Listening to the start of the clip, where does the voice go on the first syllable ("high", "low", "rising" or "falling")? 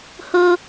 high